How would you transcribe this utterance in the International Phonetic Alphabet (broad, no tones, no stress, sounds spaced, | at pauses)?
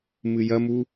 m ɨ j ɐ m u